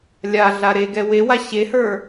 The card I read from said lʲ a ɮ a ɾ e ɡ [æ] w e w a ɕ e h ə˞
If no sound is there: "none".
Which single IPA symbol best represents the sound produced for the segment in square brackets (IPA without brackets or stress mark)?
ɛ